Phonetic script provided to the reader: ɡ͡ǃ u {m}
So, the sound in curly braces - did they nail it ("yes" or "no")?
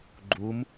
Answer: yes